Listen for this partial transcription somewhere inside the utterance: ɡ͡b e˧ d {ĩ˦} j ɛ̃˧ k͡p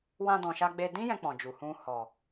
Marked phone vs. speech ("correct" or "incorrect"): correct